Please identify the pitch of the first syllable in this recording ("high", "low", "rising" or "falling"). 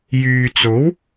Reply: low